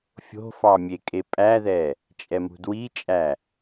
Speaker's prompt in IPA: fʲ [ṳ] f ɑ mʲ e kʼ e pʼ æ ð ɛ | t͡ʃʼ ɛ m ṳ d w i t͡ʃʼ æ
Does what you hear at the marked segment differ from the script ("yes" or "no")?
yes